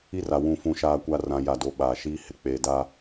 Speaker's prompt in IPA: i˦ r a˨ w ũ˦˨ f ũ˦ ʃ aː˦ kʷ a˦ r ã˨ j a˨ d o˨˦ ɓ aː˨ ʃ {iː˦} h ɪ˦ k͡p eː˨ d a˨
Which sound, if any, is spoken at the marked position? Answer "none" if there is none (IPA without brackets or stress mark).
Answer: iː˦